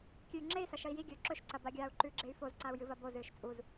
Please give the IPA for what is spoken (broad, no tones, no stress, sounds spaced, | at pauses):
kʲ ʉ y̯ ŋ͡ǁ e i̯ s ɐ ʃ ɐ i̯ j i ɡʲ ɵː ǁ ɵ ʃ ǀ ɐ b a ɡʲ aː u̯ ǃ ʉ ɡ͡ǁ e y̯ f o z ǀ a u̯ j ɨ v ɐ b o z ɨː ʃ t͡sʼ u z